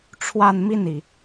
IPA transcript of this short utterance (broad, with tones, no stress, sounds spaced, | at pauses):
ʈ͡ʂʰ w a˥˧ n m i˥˩ n i˩